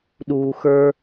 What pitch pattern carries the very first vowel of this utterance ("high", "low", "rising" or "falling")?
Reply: low